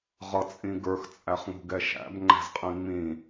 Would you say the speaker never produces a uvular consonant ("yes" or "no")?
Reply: no